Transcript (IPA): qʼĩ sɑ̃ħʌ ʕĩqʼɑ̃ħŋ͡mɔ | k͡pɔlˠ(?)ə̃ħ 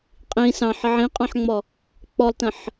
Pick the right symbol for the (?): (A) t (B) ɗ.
A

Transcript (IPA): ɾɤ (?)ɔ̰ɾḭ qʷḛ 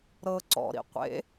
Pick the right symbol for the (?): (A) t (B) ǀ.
B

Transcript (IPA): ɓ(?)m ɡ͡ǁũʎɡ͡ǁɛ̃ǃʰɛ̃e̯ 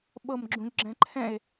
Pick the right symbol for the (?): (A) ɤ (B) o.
A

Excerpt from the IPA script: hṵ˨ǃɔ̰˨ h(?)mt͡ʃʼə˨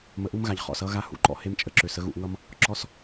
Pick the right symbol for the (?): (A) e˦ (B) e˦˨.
A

